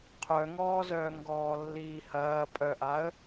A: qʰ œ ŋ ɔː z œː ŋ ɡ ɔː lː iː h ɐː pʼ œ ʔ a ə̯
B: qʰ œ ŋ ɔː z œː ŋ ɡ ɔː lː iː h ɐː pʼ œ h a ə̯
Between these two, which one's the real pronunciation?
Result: A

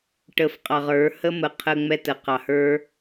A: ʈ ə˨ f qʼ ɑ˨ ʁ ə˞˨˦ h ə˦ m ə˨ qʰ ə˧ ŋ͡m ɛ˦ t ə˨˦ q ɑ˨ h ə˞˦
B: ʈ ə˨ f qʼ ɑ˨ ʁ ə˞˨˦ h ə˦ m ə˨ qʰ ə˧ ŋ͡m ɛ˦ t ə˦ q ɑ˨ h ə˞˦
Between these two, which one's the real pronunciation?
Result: A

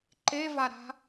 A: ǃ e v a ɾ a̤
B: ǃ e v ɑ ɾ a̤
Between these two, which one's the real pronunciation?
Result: A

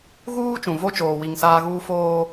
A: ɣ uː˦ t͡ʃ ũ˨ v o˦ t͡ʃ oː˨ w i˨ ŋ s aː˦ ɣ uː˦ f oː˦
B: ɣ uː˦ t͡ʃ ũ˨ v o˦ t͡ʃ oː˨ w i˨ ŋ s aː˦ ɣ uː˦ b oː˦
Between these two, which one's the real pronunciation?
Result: A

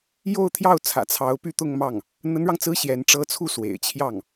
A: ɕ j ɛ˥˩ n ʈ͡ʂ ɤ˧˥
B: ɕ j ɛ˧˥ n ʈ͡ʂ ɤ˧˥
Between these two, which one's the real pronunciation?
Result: B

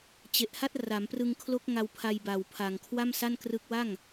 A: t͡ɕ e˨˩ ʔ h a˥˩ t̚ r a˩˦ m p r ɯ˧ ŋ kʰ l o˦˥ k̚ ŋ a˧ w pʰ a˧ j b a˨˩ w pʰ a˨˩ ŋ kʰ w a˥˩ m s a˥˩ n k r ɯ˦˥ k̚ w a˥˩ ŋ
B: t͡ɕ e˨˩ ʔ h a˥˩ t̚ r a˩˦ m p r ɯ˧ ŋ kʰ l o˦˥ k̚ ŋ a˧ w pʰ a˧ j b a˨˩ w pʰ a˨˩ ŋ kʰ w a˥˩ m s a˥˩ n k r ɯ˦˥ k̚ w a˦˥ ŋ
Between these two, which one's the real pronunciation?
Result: A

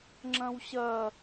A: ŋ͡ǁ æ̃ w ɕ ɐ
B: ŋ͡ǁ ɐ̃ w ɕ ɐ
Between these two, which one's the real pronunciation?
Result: B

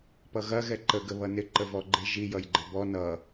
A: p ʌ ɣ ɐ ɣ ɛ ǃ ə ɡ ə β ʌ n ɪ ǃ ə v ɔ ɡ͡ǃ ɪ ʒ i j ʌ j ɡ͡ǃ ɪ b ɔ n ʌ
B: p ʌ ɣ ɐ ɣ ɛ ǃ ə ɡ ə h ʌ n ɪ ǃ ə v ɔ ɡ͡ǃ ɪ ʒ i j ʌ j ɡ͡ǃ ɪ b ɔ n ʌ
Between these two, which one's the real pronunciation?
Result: A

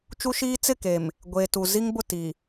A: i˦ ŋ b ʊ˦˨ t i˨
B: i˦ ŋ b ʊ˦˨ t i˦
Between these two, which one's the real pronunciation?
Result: A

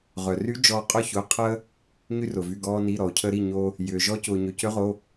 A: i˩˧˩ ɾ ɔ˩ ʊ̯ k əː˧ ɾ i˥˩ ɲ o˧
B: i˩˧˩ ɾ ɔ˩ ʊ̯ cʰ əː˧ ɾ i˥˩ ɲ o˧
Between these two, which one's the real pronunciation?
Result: B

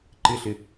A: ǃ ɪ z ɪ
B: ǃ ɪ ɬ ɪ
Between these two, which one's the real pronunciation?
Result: B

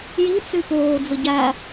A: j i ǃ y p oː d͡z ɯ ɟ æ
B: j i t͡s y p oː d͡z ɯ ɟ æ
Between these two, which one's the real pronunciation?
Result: B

